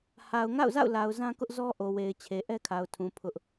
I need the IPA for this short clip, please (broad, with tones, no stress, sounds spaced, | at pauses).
h a˨ ʊ̯ ŋ a̰˦˨ ʊ̯ z a̰˦˨ ʊ̯ l a˨ ʊ̯ z ã˦ k ʊ˦ ʔ z ɔ˦ ʔ o˨ w e˨ ɪ̯ t͡ɕʰ e˨ ʔ ɛ˦ kʰ a˨ ʊ̯ tʰ ũ˨ pʰ ʊ˦ ʔ